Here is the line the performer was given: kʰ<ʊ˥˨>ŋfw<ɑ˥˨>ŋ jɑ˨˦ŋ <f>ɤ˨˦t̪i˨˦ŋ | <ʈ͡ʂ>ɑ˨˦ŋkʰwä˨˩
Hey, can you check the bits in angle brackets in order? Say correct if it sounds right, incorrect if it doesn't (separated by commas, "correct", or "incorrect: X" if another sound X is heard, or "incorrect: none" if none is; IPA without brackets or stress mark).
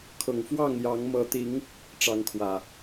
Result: incorrect: ʊ˨˩, correct, incorrect: m, correct